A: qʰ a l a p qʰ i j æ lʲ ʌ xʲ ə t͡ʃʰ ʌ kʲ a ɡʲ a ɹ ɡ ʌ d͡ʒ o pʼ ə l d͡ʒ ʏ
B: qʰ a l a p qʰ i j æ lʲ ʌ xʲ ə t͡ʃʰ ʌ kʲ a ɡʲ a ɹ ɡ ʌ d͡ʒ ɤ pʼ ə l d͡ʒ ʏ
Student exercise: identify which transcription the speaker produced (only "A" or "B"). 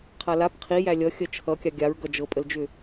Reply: B